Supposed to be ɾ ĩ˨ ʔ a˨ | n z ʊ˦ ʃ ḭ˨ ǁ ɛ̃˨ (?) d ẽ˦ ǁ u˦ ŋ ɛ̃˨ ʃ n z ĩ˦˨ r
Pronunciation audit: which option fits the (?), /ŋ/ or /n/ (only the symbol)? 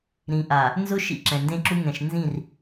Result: n